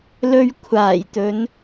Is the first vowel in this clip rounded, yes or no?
yes